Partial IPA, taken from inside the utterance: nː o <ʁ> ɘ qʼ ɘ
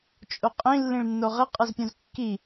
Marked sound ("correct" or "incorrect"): correct